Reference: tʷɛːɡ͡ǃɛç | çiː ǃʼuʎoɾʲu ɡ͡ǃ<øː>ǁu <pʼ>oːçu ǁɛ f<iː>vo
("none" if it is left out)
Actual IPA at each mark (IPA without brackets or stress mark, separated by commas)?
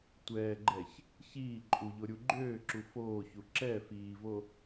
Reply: øː, f, iː